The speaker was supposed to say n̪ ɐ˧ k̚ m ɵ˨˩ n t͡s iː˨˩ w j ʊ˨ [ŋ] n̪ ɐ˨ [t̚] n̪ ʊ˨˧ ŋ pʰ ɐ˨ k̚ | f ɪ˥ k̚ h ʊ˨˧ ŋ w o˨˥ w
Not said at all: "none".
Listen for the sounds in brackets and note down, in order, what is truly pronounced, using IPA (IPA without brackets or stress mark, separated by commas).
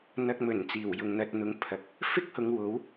ŋ, t̚